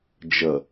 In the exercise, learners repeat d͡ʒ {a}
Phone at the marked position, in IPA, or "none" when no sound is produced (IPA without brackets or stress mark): ʌ